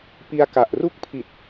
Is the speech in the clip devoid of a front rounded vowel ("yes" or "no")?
yes